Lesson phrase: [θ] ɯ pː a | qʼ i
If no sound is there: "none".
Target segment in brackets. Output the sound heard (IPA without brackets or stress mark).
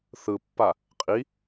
θ